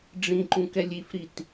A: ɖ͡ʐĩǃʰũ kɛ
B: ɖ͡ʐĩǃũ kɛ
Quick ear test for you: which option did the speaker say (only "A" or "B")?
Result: B